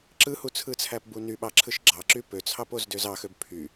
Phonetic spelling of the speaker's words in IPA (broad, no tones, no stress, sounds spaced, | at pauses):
ǁ ɯ h u t͡sʰ ɯ t͡sʰ æ p b u n y ɓ ɑ ǁʰ ɯ ʃ ɡ͡ǁ ɑ ǁ y p ø t͡sʰ ɑ p o z d ø z ɑ x ø b pʰ y